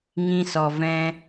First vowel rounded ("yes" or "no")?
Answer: no